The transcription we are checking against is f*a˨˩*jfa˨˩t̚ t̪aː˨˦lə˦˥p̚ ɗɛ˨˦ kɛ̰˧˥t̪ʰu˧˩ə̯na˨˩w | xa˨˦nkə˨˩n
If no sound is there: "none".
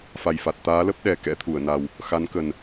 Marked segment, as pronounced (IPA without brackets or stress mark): a˨˩